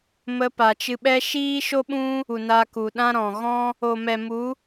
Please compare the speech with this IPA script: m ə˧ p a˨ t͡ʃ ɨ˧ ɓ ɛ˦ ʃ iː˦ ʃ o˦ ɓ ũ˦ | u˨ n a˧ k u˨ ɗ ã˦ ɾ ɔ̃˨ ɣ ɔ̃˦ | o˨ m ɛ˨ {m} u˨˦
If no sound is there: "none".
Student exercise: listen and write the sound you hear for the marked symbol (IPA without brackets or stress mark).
m